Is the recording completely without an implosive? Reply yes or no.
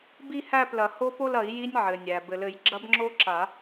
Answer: yes